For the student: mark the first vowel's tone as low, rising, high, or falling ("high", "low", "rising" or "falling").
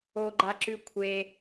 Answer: high